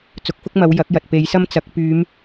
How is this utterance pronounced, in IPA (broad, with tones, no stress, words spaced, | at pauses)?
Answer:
t͡sʊ˨˥k̚fʊ˥k̚mɐ˨˧w jɐ˨˥k̚jɐ˨t̚ pe˨˧jsɐ˥mt͡sɐ˨˥k̚ pyː˨˧m